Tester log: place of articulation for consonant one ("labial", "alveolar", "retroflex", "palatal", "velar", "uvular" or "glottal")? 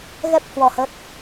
velar